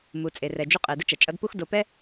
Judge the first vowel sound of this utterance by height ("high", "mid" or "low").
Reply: high